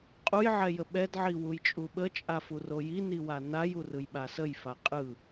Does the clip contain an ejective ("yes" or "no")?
yes